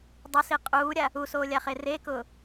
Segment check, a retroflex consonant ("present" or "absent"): absent